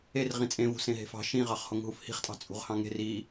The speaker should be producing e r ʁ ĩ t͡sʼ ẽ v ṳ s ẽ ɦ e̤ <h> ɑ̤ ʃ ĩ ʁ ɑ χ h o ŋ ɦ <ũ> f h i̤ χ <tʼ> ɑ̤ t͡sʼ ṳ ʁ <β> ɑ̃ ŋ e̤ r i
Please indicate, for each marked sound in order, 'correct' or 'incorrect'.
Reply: incorrect: f, incorrect: u, correct, incorrect: h

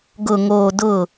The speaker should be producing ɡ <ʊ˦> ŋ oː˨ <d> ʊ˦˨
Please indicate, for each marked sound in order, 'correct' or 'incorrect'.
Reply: incorrect: ʊ˨, correct

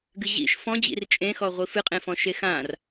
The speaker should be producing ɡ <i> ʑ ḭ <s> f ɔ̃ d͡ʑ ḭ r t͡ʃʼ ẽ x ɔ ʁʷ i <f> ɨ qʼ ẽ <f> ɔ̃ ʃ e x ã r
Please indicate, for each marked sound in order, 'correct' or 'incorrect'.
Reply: incorrect: ɨ, incorrect: ʃ, correct, correct

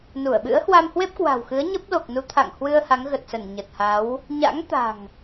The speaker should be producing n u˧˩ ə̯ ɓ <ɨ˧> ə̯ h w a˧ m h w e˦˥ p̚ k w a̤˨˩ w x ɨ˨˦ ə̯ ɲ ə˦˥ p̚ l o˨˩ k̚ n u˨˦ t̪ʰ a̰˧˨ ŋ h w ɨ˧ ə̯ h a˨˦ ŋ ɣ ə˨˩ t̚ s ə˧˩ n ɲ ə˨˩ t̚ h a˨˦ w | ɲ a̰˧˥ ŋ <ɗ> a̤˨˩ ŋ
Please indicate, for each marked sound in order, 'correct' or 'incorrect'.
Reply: incorrect: ɨ̰˧˥, incorrect: t̪

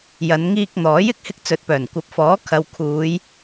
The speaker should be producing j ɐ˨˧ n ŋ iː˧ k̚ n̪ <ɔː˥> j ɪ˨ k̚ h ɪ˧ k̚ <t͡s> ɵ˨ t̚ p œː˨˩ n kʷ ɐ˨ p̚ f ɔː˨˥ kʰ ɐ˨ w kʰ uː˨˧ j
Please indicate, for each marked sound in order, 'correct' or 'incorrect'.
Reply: incorrect: ɔː˨˥, correct

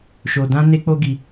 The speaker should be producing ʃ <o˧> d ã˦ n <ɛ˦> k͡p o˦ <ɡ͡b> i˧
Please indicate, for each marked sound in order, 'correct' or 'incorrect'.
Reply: correct, incorrect: e˦, incorrect: ɡ

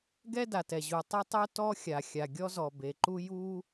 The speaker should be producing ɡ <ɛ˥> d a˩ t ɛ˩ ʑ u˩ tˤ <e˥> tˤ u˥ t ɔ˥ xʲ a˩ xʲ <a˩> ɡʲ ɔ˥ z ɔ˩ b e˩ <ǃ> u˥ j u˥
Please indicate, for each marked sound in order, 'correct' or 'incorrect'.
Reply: correct, correct, correct, correct

